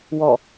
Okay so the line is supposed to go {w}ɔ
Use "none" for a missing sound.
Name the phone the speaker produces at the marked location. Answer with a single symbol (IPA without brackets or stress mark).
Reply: w